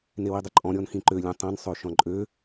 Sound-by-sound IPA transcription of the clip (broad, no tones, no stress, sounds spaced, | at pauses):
n e w i dˤ y ǃʼ ɔ̃ ɾʲ ɔ n x ĩ ǃ ø lʲ ɛ̃ tˤ ɐ̃ n sˤ ø ʃ ɔ̃ ǃʼ ø